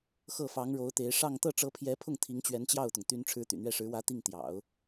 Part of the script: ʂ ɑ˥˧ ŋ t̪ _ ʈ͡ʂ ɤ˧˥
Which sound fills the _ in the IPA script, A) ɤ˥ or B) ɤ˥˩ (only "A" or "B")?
B